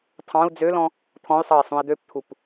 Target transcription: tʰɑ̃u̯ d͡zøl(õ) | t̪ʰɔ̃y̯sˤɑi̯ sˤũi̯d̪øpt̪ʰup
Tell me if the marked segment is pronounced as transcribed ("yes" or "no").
no